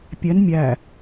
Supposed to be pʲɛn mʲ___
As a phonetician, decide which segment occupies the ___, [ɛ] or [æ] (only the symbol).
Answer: æ